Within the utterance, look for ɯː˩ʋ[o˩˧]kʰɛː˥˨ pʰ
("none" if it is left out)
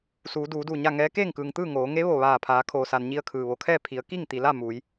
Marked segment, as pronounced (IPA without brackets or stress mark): o˩˧